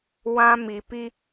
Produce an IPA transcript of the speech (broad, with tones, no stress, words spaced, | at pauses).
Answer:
wã˦mi˨pi˦